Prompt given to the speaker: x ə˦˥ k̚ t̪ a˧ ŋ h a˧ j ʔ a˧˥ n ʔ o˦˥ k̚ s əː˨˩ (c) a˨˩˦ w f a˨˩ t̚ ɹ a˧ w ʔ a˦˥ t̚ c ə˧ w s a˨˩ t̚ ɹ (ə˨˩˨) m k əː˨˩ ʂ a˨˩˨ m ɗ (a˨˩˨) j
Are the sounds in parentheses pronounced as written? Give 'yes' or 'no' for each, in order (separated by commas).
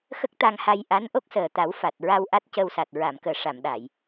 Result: no, no, yes